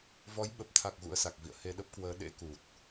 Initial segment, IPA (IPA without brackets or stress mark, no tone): v